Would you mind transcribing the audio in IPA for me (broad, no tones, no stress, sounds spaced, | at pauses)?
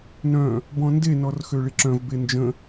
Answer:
n œ̃ | b ɔ̃ n d e n ɔ r x ø ɭ i ǁ œ̃ v b e n d͡ʒ ə̃